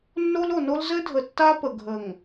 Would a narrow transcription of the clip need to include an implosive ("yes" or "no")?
no